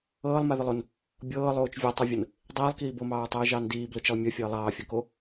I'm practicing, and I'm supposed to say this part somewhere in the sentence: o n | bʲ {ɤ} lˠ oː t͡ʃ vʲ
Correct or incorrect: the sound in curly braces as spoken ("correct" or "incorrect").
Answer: incorrect